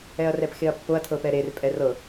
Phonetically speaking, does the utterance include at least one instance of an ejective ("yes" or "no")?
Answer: yes